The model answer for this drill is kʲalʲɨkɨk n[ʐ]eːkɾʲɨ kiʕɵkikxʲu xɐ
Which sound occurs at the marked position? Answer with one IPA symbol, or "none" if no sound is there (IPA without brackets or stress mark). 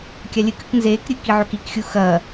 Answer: z